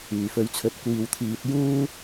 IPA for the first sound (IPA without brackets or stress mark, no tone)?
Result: yː